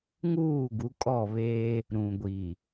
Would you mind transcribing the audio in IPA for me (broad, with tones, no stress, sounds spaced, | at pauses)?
ŋ uː˦˨ ɡ u˨˦ kʼ ɔ˦˨ β eː˦ | ɾ ũ˨ ɡʷ i˨